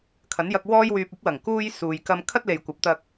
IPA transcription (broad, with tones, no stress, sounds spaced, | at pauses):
kʰ ɐ˨˥ n j ɐ˧ k̚ w ɔː˥ j w yː˧ p̚ ɵ˧ t̚ w ɐ˨˩ ŋ k uː˧ j s uː˨ j k ɐ˧ m kʰ ɐ˥ t̚ l e˨ j kʷ ɐ˨˥ p̚ t̪ ɐ˧ k̚